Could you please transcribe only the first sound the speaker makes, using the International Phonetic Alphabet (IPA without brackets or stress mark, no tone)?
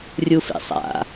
rʲ